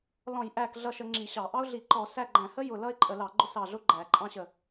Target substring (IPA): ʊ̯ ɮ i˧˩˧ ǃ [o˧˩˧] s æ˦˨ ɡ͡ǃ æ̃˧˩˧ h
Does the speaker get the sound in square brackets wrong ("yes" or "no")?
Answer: yes